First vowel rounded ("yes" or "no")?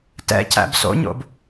no